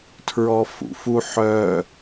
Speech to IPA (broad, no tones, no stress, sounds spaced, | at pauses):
tʰ ɹ ɔ f ṵ f u ħ œ